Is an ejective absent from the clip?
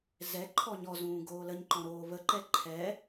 yes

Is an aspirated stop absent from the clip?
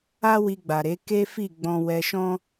yes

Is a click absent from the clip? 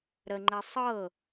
no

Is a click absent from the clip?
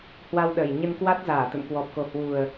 yes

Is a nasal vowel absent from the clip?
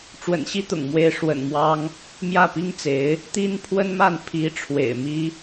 yes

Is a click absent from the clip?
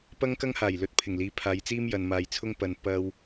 yes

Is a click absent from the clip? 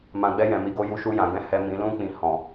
yes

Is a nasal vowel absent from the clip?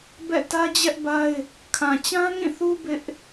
no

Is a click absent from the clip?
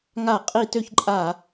no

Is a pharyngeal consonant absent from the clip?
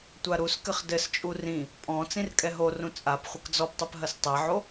no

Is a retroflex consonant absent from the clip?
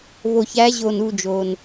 yes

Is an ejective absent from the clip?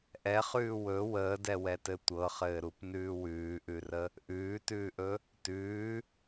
yes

